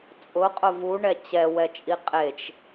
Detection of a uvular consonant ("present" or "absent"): present